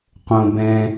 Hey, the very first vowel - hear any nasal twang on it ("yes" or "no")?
yes